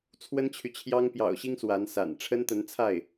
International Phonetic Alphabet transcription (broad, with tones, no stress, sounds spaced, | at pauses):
t͡sʰ w ə˥ n t͡ɕʰ y˨ t͡ɕʰ j ɑ˥ ŋ p j ɑ̰˨˩ ʊ̯ ɕ i˥ ŋ s w a˧˥ n s a̰˨˩ n ʈ͡ʂʰ ə˥ n t̪ ə˧˥ n t͡sʰ a˥˩ ɪ̯